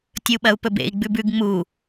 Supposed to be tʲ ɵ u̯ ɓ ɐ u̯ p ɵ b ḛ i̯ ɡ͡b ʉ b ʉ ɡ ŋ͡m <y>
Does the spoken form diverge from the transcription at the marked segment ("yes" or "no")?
yes